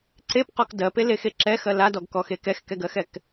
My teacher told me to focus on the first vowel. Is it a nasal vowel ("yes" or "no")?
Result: no